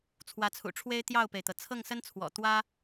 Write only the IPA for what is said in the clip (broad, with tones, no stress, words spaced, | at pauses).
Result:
t͡sʰwä˧˥t͡sʰṵ˨˩ʈ͡ʂʰwe˥ɪ̯ t̪jɑ˥˩ʊ̯pe˩ɪ̯t̪ɤ˩ t͡sʰɤ˥˩ŋ sə˥nt͡sʰwɔ̰˨˩ t̪wä˥